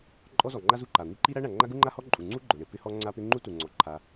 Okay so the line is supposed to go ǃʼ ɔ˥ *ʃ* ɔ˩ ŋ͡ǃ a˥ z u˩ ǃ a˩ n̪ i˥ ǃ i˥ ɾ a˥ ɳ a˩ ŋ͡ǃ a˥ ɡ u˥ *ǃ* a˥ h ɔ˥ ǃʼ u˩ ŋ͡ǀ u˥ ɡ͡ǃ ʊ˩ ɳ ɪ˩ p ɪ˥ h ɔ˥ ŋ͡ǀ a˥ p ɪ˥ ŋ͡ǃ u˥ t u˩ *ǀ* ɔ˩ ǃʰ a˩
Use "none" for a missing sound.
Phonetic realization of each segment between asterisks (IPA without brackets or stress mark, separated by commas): z, ŋ͡ǃ, ŋ͡ǀ